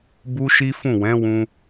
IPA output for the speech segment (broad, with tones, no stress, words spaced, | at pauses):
bu˦ʃi˦fũ˦˨ wɛ̃˨˦wũ˧